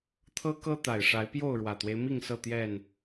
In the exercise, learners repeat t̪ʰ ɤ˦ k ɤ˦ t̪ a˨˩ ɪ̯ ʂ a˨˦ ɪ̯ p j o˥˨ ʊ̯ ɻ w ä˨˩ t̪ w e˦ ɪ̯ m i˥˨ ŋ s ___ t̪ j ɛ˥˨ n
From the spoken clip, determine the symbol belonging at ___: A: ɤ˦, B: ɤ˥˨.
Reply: B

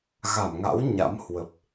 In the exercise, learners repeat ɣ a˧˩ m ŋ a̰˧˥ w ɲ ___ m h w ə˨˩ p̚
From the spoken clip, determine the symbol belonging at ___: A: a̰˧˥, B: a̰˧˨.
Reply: A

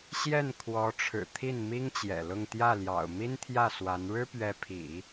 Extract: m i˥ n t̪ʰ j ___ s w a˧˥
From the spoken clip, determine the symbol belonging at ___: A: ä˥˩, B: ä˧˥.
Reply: A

